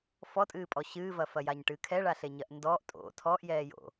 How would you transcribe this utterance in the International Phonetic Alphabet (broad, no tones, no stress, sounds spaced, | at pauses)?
f ɔ tʼ ɨː pʼ ɔ ɕ ɨː v ɐ f ɐ j a ɲ ʈ ɨː kʰ ɛ ɭ a ɬ e ɲ ɐ ʔ n d ɔː ʔ tʼ o̰ tʰ ɔ ʔ j ɛː j o̰